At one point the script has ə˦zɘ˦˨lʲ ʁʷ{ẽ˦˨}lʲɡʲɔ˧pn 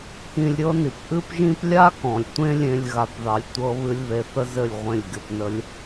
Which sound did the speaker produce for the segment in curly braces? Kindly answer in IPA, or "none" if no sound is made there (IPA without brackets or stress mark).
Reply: ẽ˦˨